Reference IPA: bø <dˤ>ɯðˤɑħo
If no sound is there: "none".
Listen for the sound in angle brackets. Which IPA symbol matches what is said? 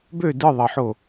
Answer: d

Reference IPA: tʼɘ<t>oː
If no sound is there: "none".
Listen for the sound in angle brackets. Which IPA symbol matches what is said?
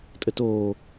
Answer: t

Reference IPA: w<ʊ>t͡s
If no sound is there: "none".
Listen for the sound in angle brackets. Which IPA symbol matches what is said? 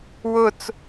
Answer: ʊ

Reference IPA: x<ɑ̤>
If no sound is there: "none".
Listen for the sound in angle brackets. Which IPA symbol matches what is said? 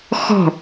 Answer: ɔ̤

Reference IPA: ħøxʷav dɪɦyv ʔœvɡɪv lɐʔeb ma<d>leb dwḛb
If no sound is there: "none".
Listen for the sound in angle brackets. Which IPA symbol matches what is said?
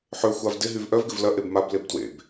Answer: b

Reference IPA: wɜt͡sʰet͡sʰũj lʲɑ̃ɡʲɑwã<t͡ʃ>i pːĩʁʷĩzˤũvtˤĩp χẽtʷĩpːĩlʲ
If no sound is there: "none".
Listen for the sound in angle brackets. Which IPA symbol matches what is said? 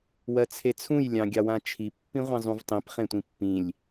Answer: t͡ʃʰ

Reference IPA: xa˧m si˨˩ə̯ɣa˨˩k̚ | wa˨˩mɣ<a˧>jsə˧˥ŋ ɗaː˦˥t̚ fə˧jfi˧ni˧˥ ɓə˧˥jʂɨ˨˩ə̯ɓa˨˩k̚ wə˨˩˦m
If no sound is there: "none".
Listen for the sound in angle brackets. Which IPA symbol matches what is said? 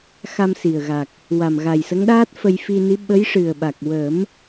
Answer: a˨˩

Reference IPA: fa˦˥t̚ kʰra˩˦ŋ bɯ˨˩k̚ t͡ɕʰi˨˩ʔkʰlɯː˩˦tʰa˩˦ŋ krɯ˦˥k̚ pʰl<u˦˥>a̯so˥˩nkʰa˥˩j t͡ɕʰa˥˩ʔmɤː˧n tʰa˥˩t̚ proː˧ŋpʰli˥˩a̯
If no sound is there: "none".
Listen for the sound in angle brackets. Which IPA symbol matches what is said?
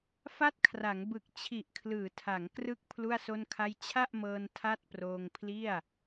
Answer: u˥˩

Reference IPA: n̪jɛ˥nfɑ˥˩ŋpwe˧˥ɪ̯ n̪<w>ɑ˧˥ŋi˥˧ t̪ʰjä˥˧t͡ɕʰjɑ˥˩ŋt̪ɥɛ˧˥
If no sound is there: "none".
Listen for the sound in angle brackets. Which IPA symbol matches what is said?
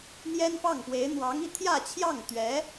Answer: w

